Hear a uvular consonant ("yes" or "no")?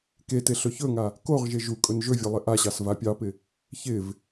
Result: yes